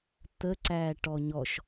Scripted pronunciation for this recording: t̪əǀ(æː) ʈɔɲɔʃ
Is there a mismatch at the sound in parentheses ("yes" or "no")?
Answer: no